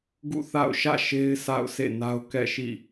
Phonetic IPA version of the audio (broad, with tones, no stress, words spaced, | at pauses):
ɡṵ˦˨θa̰˦˨ʊ̯ʃä̰˦˨ʃe˦ɪ̯ sa̰˦˨ʊ̯ sḛ˦˨na˦ʊ̯ kɛ̰˦˨ʃḭ˦˨